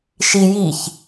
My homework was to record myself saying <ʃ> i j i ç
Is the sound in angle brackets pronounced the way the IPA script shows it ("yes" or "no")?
yes